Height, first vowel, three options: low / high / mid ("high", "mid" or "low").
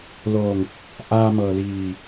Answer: mid